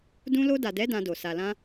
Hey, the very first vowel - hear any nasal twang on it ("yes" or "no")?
yes